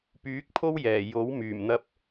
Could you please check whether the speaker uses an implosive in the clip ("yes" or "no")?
no